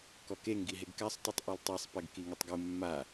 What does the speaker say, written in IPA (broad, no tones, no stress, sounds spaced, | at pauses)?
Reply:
k ɔ k e ŋ ɡ i ɦ e ɡ k a sˤ tˤ u tˤ ʔ ɛ l tˤ ɛ sˤ p ɛ ɡ k i ŋ i tˤ ɡ u mː a